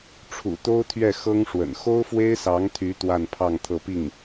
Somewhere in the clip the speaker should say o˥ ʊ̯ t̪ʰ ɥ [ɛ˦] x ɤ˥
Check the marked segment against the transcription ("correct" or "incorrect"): incorrect